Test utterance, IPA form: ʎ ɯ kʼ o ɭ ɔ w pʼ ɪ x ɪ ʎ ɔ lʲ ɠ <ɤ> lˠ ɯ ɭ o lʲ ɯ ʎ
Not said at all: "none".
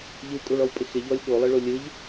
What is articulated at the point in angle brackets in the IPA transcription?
o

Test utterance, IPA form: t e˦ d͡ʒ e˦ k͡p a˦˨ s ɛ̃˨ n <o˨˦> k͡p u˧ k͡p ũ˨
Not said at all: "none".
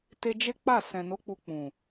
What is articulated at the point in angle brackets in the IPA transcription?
o˨˦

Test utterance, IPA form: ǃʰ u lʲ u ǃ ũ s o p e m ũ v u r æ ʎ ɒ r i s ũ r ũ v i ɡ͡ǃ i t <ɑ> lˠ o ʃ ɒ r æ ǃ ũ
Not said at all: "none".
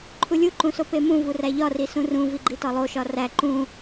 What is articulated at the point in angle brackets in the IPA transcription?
ɒ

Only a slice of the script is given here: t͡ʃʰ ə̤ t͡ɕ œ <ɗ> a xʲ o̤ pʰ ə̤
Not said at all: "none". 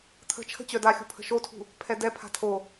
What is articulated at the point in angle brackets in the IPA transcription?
d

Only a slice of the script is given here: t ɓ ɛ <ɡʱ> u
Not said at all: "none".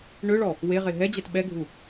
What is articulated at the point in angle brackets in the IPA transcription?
ɡʱ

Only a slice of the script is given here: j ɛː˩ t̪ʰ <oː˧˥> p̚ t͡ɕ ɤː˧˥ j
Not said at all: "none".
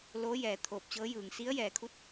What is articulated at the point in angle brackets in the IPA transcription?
oː˧˩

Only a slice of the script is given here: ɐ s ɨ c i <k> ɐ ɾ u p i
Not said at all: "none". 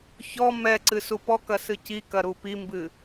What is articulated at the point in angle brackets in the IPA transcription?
k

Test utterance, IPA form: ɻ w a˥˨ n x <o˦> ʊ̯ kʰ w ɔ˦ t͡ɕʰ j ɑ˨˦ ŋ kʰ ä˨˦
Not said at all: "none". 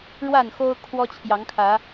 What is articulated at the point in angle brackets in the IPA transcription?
o˦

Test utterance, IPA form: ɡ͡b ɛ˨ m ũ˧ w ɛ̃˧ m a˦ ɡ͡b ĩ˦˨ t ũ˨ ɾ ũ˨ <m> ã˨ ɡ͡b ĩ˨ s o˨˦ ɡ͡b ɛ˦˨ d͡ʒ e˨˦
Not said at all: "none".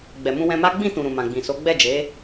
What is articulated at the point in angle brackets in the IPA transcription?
m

